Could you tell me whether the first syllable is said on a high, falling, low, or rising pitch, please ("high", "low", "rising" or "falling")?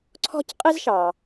high